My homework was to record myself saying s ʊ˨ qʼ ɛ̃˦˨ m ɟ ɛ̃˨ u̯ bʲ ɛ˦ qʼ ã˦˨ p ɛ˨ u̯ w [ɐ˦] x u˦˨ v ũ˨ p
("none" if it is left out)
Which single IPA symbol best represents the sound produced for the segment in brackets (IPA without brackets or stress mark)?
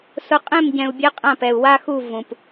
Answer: a˦